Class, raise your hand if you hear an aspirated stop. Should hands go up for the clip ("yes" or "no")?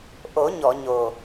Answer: no